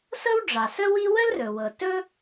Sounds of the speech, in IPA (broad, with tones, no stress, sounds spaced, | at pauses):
s ɤ˥ w ɖ͡ʐ ɑ˩ s ə˥ w i˥ w ə˥ l r ɵ˩ w ɤ˩ t ɵ˥